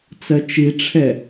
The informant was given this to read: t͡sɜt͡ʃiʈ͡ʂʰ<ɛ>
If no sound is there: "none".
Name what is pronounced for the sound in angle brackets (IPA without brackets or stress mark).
ɛ